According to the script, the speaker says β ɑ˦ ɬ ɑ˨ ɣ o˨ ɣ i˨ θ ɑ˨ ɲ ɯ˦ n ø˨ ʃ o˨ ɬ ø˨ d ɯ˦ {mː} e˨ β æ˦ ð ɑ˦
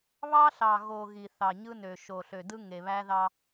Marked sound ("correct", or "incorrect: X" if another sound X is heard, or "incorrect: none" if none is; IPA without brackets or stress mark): incorrect: ŋ